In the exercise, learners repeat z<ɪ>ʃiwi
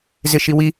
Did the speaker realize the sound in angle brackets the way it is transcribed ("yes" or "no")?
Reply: yes